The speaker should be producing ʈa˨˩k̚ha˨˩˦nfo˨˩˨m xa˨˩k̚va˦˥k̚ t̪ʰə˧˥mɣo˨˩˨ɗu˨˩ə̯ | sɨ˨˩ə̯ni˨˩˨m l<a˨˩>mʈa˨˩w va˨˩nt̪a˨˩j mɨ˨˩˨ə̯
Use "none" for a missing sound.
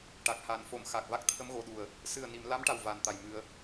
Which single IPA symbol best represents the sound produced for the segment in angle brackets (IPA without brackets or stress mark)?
a˧˥